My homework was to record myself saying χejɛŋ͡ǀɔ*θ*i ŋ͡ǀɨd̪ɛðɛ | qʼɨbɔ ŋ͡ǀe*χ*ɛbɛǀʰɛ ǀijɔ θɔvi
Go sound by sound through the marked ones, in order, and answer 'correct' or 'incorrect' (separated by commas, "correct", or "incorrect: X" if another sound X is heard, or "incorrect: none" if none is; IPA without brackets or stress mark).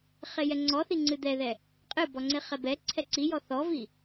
correct, correct